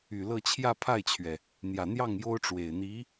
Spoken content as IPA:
y˨˩lɤ˥˧ t͡ɕʰjä˥˧pʰa˥˩ɪ̯t͡ɕʰɥɛ˩ | n̪jä˨˩n̪jɑ˥˩ŋ jo˥ʊ̯ʈ͡ʂwe˨˩ɪ̯ n̪i˧˥

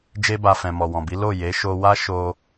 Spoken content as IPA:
d͡ʒe˦ba˧ fɛ̃˨mɔ˨wɔ̃˨bi˨˦ lo˦˨ je˨˦ʃo˧wa˦ ʃo˦

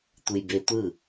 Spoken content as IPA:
tʷɯjbetʷɯ

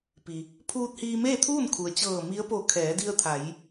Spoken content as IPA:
pi˩ | pʰuː˧t̚hiː˧ meː˥˨t̪ʰuː˥˨nkʰu˩ə̯ t͡ɕɤː˧˩mi˧˥ə̯po˧˩ kʰɛː˩˧di˧ə̯t̪ʰa˩˧j

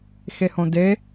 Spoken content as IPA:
xehõde

